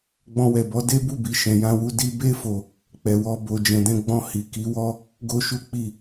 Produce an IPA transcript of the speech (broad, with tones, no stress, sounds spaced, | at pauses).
ɡ͡b ɔ̃˧ w ɛ˨ b ɔ˨˦ d e˦ b u˦˨ b i˨ ʃ ɛ̃˨ j ã˧ w u˧ d i˧ b e˦ f o˦˨ | k͡p ɛ˨ w ɔ˧ b o˨ d͡ʒ ɛ̃˨ d ɛ̃˧ ɡ͡b ɔ̃˧ h i˨ k i˨˦ w ɔ˦ | ɡ o˦ ʃ u˦ k͡p i˦˨